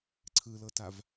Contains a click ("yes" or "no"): yes